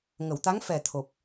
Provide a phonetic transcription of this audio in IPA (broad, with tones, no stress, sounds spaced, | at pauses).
ŋ ə˨˩˨ w t̪ a˧˥ ŋ f ɛ˨˩ t̪ʰ o˨˩ p̚